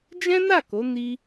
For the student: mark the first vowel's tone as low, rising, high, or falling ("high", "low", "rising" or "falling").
high